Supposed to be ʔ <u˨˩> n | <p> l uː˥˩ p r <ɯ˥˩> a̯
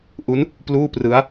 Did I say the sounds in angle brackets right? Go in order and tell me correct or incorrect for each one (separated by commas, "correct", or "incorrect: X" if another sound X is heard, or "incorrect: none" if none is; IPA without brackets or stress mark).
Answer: incorrect: u˦˥, correct, incorrect: ɯ˦˥